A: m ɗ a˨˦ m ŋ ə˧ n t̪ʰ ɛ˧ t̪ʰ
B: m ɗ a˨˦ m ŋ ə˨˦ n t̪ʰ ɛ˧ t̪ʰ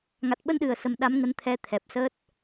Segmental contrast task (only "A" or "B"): B